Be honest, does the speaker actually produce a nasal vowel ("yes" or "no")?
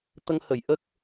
no